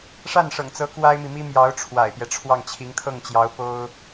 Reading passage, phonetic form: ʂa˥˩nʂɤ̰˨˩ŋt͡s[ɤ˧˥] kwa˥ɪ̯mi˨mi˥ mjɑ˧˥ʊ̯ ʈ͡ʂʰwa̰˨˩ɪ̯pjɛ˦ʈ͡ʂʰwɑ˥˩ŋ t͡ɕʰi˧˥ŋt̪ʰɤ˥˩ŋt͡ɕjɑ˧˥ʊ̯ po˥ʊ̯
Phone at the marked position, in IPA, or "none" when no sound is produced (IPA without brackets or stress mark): ɤ˧˥